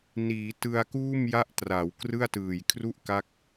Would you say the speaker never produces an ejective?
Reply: yes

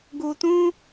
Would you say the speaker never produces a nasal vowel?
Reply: no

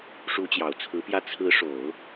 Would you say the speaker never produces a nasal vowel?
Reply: yes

